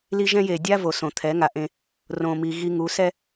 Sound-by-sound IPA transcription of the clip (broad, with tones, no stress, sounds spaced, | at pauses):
l i˦ ʒ ɛ̃˦ j e˨ dʲ a˦ v o˨ s õ˨ t̪ʰ ɛ˨˦ ŋ a˨ ʔ ẽ˦ | r õ˨ m i˨ ɣ i˦ ŋ u˨˦ s ɛ˦